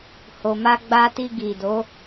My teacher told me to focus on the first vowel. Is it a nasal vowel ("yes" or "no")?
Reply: no